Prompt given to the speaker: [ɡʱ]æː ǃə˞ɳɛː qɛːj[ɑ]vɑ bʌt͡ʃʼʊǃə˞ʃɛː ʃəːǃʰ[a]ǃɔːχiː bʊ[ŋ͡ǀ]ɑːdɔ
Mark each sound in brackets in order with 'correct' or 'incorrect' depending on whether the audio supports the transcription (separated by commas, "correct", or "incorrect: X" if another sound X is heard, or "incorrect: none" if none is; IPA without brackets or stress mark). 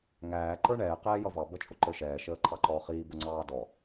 incorrect: ŋ, incorrect: ʌ, incorrect: ɑ, correct